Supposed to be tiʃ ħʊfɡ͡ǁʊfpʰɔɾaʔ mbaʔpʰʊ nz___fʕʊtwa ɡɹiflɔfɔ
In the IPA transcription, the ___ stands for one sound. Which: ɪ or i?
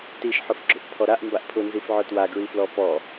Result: i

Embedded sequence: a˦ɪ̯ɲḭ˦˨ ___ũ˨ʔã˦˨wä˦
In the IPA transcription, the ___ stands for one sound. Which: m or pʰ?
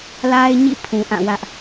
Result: pʰ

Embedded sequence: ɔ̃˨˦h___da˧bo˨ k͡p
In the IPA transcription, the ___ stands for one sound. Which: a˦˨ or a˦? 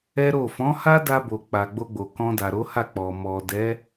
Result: a˦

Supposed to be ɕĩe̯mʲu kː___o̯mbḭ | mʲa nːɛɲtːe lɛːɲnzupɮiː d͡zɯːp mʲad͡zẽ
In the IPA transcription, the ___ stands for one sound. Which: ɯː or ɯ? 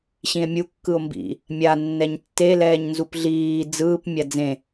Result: ɯ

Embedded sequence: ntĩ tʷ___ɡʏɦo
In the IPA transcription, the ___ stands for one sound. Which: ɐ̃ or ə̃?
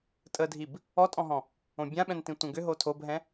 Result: ə̃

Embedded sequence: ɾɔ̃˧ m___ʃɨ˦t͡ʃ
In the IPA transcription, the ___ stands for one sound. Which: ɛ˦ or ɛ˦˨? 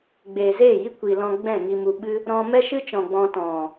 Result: ɛ˦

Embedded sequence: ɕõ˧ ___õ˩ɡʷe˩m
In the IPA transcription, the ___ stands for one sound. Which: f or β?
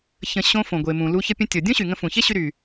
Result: f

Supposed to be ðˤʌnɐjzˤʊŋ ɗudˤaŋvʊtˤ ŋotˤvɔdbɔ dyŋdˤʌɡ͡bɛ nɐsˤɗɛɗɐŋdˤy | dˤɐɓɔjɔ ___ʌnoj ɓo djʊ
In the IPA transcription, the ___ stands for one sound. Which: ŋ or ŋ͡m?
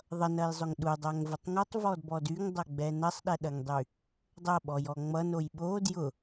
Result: ŋ͡m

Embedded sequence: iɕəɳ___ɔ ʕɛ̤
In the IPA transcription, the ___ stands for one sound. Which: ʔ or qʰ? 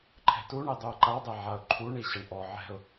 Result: ʔ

